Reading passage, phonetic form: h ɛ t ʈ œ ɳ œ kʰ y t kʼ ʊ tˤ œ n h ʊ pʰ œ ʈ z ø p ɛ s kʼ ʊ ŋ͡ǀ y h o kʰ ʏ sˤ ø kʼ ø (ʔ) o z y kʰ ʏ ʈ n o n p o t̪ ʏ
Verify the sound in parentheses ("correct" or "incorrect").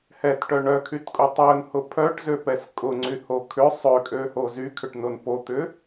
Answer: incorrect